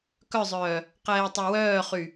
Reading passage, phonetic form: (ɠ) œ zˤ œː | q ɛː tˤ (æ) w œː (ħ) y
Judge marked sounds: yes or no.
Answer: no, no, no

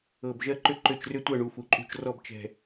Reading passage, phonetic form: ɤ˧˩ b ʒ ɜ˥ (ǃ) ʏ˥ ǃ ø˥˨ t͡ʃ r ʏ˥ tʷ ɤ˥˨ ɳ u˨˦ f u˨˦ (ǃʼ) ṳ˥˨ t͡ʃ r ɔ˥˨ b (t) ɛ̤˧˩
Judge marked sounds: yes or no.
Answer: yes, yes, no

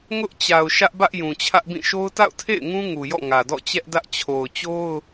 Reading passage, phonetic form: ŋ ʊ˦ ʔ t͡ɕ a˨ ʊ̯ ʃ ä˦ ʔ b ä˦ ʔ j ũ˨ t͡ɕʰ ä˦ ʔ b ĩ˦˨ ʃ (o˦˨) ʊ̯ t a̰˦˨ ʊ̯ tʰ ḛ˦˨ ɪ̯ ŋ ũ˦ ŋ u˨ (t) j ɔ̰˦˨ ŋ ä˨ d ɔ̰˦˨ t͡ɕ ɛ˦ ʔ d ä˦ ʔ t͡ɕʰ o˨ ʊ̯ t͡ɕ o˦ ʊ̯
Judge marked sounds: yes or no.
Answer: no, no

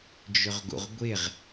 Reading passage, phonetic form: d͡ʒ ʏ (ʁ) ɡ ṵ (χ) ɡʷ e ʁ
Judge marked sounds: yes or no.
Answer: yes, no

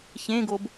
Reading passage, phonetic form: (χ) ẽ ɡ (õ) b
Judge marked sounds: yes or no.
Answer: no, no

